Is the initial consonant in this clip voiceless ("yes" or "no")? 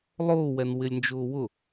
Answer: no